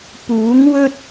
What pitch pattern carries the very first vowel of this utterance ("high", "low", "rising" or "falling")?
rising